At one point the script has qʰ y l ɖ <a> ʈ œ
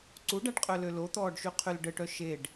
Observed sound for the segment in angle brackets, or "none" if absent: ə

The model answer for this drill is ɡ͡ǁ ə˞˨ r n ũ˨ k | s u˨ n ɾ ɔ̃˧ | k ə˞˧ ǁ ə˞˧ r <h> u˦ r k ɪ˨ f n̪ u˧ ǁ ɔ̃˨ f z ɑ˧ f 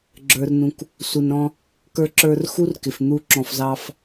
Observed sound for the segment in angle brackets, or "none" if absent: x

